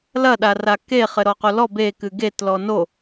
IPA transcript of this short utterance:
l ɐ ɗ a r a k e χ ɘ ɾ ɔ q o l ɔ b e k ɨ ɡ e t l ɔ n o

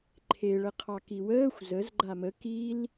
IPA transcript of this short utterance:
ǃʰ e ɭ ə qʰ ɑ k i w əː xʷ z ə z ɡ͡ǃ a m ə k i l

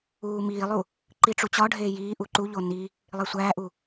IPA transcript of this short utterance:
uː m iː lˠ u | ǃ i ʈ͡ʂ u t͡ɕ ɒ ɖʱ eː j iː ʔ u ǃ u ʎ o n i | lˠ e sʷ æː ʔ u

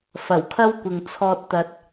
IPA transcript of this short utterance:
f ɐ˨˩ w kʰ ɐ˥ w kʷ ɪ˨ ŋ t͡sʰ ɔː˧ t̚ t̪ ɐ˧ t̚

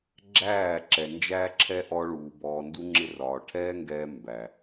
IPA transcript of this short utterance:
ɡ͡ǁ æː˦˨ ǁ ɛ˨ n d͡ʒ æː˦ ǁʰ ɛ˦ ʔ ɔ˧ ɭ uː˨ b ɔː˨ n d u˧ ŋ͡ǁ ɪ˧ r ɒː˨ ʈʰ ɛː˦ ŋ ɡ ɛː˧ m b æ˨

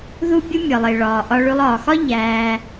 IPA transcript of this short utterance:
ð u˦ bʲ u˦ mʲ ɒ˨ lˠ e˨ ɭ ɒː˨ ʔ ɒ˧ ɭ ʉ˧ lˠ ɒː˨ x ɒ˦ ʎ æː˧

